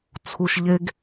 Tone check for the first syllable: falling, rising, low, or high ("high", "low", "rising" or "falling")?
low